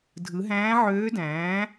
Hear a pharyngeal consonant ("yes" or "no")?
yes